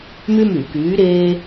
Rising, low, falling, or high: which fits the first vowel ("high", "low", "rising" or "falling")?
high